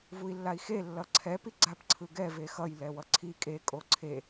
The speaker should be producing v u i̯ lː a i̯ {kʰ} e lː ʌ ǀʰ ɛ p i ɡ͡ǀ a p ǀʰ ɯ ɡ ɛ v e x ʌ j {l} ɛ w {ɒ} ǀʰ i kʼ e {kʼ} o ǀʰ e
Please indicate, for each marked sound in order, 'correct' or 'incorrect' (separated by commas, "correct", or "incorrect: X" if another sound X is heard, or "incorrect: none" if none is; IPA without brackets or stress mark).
incorrect: x, correct, incorrect: ʌ, correct